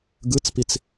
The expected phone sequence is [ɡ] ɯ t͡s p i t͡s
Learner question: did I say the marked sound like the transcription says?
yes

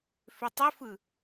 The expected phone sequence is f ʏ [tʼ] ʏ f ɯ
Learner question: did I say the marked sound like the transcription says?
no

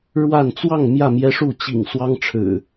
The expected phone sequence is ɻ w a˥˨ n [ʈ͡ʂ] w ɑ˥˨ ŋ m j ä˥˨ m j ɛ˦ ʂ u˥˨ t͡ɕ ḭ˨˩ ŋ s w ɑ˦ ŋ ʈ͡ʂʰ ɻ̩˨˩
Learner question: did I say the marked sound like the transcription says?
no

